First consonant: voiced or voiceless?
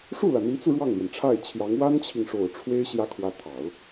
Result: voiceless